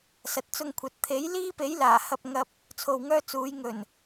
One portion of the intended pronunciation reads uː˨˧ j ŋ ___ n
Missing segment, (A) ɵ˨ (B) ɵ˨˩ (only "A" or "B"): B